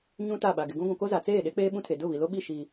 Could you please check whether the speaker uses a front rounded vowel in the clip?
no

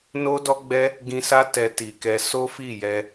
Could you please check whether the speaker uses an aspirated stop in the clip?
no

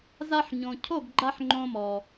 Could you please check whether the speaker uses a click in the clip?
yes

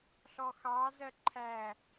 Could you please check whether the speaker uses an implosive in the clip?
no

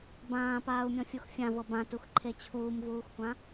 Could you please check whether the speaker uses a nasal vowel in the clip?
yes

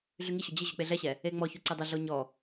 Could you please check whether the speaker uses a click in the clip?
yes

